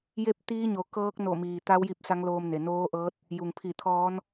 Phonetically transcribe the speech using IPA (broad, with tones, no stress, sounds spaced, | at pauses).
j e˥˨ p̚ t̪ iː˧˥ ɲ o˩ k ɤː˧˥ k̚ n o˧˩ m iː˩ t̪ a˧˥ w j i˧ p̚ s a˧˥ ŋ l oː˧ m n e˩ n oː˧˥ ʔ ɤː˧˥ t̚ | j u˩ ŋ pʰ i˧˩ t̪ʰ ɔː˧˥ n